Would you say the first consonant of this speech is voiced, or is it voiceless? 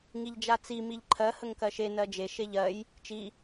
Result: voiced